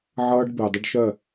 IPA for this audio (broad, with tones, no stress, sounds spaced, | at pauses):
ʕ ʌː˧ ɖ b ɪː˨ dˤ ə˦ ɖ ʃ ɜ˦˨